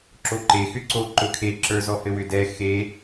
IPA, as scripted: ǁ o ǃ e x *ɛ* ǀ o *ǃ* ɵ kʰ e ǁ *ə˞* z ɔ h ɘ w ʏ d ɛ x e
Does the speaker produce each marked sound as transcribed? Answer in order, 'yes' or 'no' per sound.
no, yes, yes

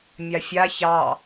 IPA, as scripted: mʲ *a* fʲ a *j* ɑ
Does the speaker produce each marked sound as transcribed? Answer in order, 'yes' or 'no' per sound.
yes, no

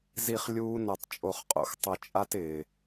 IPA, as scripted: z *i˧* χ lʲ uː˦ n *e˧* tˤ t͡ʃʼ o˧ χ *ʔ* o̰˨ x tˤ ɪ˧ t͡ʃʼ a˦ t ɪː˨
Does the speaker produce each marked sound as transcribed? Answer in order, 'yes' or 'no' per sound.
yes, no, no

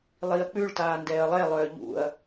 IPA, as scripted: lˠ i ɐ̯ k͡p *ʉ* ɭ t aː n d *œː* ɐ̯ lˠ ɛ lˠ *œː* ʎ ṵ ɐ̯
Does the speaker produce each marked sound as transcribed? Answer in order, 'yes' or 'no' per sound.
yes, no, yes

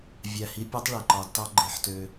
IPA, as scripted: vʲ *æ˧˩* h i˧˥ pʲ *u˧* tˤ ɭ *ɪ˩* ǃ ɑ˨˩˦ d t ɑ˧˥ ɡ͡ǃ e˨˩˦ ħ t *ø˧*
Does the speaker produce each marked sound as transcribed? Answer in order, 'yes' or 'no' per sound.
yes, no, no, yes

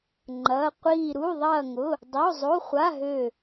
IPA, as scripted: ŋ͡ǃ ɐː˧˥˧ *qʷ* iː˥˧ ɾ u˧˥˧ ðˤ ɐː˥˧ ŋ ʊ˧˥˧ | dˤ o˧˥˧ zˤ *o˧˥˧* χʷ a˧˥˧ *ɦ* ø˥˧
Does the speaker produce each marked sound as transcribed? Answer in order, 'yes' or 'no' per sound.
yes, yes, yes

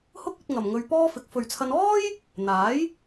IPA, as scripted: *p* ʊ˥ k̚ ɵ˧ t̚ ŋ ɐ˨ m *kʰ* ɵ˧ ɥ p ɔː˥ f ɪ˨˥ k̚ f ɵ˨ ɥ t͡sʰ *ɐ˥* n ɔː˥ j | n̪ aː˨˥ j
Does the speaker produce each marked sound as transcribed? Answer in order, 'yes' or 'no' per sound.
no, no, no

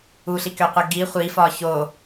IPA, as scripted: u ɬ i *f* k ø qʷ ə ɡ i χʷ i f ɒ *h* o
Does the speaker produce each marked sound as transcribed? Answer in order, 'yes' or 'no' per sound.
no, no

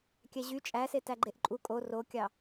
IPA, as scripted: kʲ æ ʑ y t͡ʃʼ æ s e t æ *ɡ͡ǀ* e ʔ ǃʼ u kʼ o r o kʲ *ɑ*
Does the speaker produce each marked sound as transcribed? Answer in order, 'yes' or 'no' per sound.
no, yes

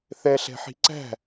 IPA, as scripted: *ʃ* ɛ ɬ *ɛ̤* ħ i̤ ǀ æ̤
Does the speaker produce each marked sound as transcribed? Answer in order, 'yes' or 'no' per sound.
no, yes

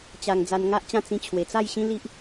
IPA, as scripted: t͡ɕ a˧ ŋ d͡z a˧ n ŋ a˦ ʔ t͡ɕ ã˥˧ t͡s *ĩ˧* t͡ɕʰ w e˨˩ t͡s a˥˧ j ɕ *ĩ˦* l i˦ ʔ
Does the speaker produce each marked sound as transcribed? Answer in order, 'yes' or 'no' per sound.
yes, yes

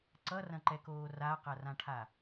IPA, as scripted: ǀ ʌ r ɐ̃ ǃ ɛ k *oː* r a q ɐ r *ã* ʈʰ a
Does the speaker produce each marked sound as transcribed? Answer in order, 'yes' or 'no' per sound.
yes, yes

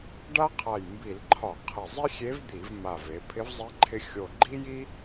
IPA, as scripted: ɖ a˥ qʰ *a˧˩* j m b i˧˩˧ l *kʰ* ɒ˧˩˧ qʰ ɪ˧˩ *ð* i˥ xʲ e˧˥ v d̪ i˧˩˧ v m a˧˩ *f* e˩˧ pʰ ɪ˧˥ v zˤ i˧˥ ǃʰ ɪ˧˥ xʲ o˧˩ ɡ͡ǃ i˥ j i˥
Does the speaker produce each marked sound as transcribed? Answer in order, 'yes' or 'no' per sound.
yes, no, no, no

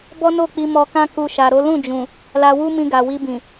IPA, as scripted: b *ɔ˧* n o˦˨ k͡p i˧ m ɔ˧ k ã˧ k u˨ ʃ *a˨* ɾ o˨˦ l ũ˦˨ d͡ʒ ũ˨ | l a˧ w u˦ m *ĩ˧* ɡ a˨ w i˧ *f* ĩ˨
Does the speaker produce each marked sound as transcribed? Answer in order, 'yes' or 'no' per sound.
no, yes, yes, no

